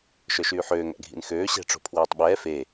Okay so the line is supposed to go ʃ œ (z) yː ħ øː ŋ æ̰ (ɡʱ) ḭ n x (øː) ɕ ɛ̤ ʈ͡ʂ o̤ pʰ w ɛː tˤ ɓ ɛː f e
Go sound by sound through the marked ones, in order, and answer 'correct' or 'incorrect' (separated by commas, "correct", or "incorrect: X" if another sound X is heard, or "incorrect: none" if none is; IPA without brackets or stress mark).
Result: incorrect: ʃ, correct, correct